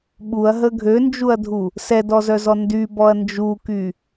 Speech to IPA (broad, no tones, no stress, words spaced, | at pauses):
ɓuɐ̯ɦə ɡʱønd͡ʒuɐ̯dʱu | sɛdɔzœzɔ ndybɔɐ̯ nd͡ʒuky